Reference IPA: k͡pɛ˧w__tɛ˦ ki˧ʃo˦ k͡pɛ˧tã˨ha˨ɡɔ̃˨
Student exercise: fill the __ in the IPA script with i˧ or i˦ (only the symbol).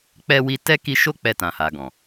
i˧